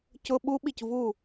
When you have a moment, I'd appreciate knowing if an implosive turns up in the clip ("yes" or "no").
yes